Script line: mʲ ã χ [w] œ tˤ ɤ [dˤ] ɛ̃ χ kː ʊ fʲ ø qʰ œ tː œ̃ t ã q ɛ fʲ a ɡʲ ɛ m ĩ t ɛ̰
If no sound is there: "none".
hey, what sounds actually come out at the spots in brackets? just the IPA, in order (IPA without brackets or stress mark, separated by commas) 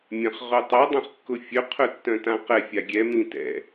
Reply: ʁ, dˤ